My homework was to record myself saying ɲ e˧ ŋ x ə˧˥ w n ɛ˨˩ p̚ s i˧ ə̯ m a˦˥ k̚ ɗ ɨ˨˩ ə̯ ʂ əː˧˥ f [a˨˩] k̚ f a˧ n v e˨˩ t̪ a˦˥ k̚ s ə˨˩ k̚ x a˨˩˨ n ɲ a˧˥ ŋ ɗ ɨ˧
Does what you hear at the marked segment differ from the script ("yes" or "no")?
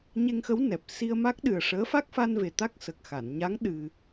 yes